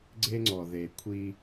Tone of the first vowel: high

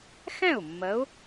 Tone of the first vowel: falling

